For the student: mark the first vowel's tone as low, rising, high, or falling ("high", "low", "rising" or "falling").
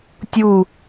falling